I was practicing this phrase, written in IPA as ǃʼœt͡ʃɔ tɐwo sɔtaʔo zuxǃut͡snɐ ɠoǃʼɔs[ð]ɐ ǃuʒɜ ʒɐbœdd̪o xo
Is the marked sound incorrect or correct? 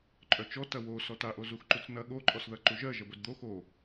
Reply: correct